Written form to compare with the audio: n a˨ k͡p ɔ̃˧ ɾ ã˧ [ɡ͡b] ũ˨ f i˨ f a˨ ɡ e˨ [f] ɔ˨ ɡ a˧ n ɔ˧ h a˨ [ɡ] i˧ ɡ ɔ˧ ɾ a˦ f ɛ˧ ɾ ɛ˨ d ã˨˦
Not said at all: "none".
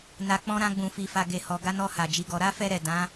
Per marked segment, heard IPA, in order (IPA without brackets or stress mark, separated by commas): ɡ͡b, h, d͡ʒ